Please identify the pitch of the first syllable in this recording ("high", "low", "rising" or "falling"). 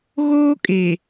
high